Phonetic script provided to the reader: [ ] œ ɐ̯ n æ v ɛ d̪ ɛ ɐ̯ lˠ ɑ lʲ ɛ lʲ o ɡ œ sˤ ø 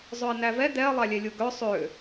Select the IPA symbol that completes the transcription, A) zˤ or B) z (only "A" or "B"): A